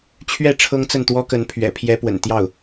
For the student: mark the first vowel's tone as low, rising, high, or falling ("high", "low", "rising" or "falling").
falling